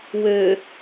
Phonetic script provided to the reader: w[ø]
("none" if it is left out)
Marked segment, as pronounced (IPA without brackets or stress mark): ø